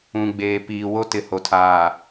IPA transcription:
ũ˨ ɡ͡b eː˨ p iː˨ w o˦ t ɪ˨ h o˨ tʰ aː˨

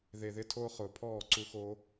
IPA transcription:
ð e˨ ð ɪ˧ tʰ oː˧ χ ʊː˨ pʰ ɔː˦˨ ǀ u˧ x oː˧

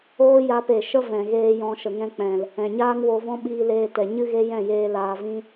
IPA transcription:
oː˦ j a˧ p e˨ ʃ ə˦ v ɛ̃˨ ɣ eː˧ j ɔ̃˧ ʃ ə˨ ŋ ɛ̃˧ k͡p ɛ̃˨ l | ɛ̃˨ ɲ aː˦ ŋ w o˧ v ɔ̃˦ ɓ iː˧ l eː˧ t ɛ˨ ɲ ɨ˦ ɣ e˦ j ɛ̃˦˨ j eː˧ l aː˧ v ĩ˦

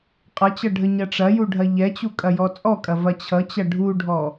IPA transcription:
qʼ ʌ t͡ɕ ʌ ɖʱ ə ɲ ɐ ʈ͡ʂ ɐ j u ɖʱ ɐ ʎ ɛ t͡ɕ u kʼ ɐ j ɔ t͡sʼ ɔ kʼ ɐ v ɐ t͡ɕʰ ʌ t͡ɕ ɐ ɖʱ u ɖʱ ɔ

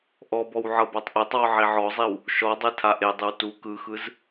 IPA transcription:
ʔ ɔ b ɔ w ʕ ɤ b a tˤ ʔ e tˤ w ɔ ʕ i ʕ ɔ zˤ i w | ʃ ɔ dˤ e tʰ a ʔ e dˤ ɯ w t u k ɯ x ɯ z

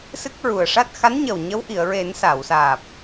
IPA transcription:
s ɨ˦˥ k̚ ɹ u˨˩ ə̯ ʂ a˦˥ t̚ x a˧˥ n ɲ ə˨˩ w ɲ ə˧˥ w ʔ i˨˩˨ ə̯ ɹ e˨˩˦ n s a˨˩˨ w s aː˨˩ p̚

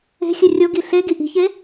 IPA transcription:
e̤ xʲ ɨ rʲ o ɡ i ɬ e ɡ i ʔ i̤ ç e

